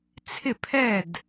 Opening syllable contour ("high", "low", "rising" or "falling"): falling